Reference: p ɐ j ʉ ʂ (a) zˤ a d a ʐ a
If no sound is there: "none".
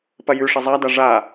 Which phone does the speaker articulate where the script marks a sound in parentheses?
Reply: ɐ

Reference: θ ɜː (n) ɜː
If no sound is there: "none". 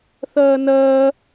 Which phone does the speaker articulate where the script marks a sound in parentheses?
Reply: n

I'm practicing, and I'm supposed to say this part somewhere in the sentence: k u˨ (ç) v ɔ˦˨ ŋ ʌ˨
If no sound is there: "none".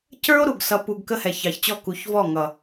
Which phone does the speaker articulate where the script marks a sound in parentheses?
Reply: ç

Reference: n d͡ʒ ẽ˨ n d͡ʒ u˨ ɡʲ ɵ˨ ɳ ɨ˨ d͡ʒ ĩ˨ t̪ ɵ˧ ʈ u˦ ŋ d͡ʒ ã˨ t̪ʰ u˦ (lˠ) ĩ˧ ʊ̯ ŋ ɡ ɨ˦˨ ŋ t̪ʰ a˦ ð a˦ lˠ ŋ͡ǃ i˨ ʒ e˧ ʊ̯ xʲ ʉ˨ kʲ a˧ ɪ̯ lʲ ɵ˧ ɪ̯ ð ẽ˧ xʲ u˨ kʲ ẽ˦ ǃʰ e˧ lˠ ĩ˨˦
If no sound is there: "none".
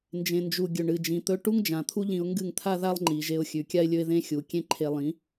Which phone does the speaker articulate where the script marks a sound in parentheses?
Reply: ʎ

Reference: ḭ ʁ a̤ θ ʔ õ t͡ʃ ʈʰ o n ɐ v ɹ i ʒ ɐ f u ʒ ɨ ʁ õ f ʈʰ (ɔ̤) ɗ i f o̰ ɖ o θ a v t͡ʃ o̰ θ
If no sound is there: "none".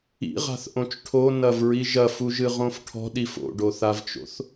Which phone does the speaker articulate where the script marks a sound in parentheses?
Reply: ɔ̤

